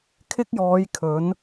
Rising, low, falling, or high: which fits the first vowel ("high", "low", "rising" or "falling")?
high